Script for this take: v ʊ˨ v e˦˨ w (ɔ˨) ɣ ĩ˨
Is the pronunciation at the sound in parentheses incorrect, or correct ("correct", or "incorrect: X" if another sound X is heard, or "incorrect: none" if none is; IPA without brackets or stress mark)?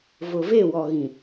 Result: correct